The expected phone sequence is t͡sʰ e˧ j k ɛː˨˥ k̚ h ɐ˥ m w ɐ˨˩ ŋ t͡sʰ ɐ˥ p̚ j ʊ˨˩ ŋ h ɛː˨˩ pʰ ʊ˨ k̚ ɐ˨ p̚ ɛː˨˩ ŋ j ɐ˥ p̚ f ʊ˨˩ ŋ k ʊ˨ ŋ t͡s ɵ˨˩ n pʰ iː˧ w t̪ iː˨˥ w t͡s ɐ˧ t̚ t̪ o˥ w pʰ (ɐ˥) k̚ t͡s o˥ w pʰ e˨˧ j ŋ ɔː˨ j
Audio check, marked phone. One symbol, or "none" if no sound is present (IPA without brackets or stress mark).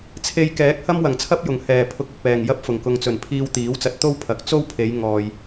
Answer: ɐ˨˥